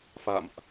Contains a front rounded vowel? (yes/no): no